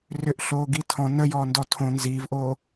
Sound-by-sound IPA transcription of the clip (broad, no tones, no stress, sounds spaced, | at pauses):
r ʏ ʔ ɬ oː ɡ i tʰ ɔ̃ n ə j ɔː n d ɔ tʰ õ n z iː v ʔ oː